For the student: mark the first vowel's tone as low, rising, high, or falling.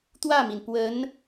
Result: falling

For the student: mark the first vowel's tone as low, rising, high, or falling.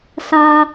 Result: high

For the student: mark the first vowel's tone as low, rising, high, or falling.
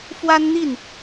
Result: high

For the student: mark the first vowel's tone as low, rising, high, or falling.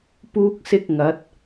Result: high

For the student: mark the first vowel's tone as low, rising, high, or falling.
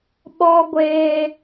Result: high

